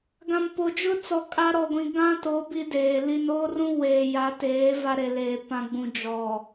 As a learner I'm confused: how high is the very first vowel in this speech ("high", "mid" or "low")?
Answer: low